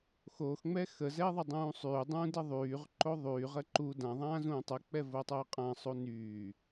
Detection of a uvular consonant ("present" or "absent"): present